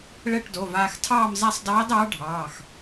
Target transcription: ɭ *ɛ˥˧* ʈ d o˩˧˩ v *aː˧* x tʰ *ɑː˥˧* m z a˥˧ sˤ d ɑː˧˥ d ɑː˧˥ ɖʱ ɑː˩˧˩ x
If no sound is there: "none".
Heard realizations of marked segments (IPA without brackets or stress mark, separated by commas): ɛ˥˧, aː˧, ɑː˥˧